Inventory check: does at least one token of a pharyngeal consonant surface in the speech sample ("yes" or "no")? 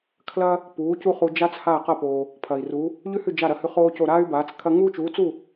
no